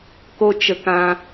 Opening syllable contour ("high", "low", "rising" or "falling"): high